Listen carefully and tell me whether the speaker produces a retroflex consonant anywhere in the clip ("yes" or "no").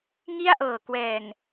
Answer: no